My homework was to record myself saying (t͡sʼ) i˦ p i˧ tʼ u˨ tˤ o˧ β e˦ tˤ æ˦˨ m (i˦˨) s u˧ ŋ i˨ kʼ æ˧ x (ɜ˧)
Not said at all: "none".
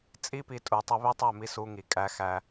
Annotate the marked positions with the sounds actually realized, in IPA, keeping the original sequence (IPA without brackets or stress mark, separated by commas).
t͡sʼ, i˧, æ˧